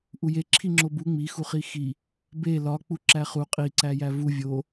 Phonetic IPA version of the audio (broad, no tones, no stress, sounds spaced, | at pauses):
ʔ u j e ǁʰ i ŋ͡ǁ o b u ŋ͡m i x u χ i x i | b e l ɒ k͡p u ǁ æ χ u qʼ i ǀ æ j æ v u vʲ o